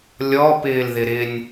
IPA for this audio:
lʲ ɔ p ɪː l ð ɪ ɾ ɪ nʲ

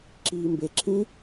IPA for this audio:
ǁ iː m b e ǁʰ ĩ

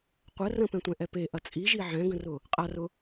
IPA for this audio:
qʷ ə r ə̃ p ɛ̃ tʷ ɛ̃ ʔ ɛ p e ʔ ɐ t͡sʼ i ʒ i ʕ ɛ̃ ɡ ə̃ r ʊ | qʼ a r ʊ

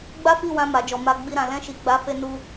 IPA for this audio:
ɡ͡b a˦ f i˦˨ w ã˧ m a˨ d͡ʒ ɔ˨ m a˨ ɡ͡b i˧ ɾ ã˨ l ɛ̃˧ ʃ i˨ ɡ͡b a˨˦ f e˧ n u˧

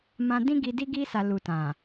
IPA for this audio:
m ã˧ d ĩ˦ ɡ i˧ d i˧ ɡ i˧ s a˨ l u˨ t ã˨

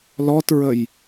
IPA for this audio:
l ɔ t ɹ ə j

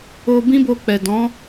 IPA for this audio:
o˧ b ĩ˦ b o˧ k͡p ɛ˨ d ɔ̃˨˦

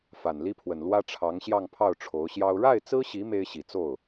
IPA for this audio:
f a˨˩ n l i˥ pʰ w ə˨˩ n l w ä˥ ʈ͡ʂʰ ɑ˧˥ ŋ ɕ j ɑ˥˧ ŋ pʰ ɑ˥˩ ʊ̯ ʈ͡ʂʰ o˧˥ ʊ̯ ɕ j ɑ˥ ʊ̯ ɻ a˥˩ ɪ̯ t͡s ɹ̩˥ ɕ i˧˥ m e˥ ɪ̯ ɕ i˨˩ t͡s o˥˩ ʊ̯

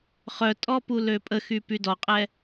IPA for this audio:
χ œ tʼ ɔ p u l ø pʼ ə x y p y d ɔ qʼ ɛ

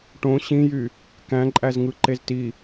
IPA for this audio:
ʈ õ ɕ ĩ j y | k æ̃ ǃʼ æ z ŋ ɯ ǃ e z t i

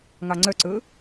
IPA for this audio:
ŋ ɑ ŋ͡ǀ œ ǀ ɵː

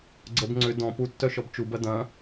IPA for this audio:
ɡ͡ǀ ə b ŋ͡ǀ ʏ d ɔ̃ p u tː œ ʃ ɔ b t͡ʃ u b ɐ d ɐ̃

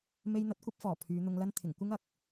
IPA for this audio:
m e˧ j n̪ ɐ˨˥ t̚ kʷ ɐ˧ p̚ f ɔː˨˩ pʰ yː˨˧ n̪ ʊ˧ ŋ l ɐ˥ n t̪ʰ ɪ˨˩ ŋ kʷ ɪ˥ ŋ ɐ˧ k̚

